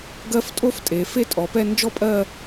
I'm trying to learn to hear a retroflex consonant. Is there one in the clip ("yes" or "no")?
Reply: no